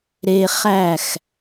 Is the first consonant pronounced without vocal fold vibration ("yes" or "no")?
no